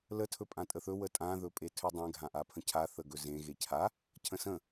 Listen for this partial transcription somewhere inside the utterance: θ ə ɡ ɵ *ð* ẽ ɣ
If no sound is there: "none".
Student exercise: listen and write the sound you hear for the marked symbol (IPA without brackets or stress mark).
z